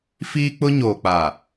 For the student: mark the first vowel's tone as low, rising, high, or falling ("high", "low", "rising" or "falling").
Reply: high